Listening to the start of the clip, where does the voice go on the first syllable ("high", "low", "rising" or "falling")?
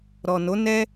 low